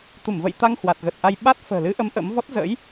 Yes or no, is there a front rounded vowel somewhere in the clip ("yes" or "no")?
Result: no